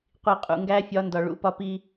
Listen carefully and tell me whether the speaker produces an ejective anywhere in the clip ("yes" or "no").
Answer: yes